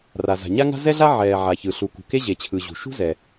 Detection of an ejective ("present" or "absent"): absent